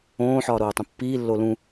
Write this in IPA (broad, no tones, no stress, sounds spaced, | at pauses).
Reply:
õː ħ ɒː ɾ oː tˤ ũ pː iː lː o l ũ